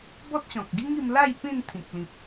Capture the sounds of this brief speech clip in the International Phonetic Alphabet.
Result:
b ɔ˦ t̚ ɕ ɔ̃˨ k̚ ɡ i˦ ŋ i˧ m l a˥˧ j p ĩ˥˧ n t̪ʰ ĩ˨ k̚ l ĩ˨ p̚

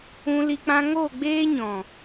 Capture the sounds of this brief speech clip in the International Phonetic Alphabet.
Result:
ũ˧ l i˧ k͡p ã˧ ŋ o˦˨ ɡ͡b eː˦ ɲ ɔ̃˨

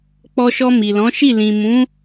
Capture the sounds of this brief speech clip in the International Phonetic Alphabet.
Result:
k͡p ɔ˧ ʃ ɔ˧ m i˨ l ɔ̃˨˦ ʃ i˦˨ l ĩ˨ m ũ˨˦

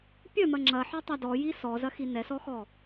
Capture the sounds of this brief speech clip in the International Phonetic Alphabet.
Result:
pʲ œ m ɐ ŋ͡ǁ ɐ ħ œ tˤ a d ɔ j i s ɔ z ɐ x i n ɛ s ɔ x ɔ

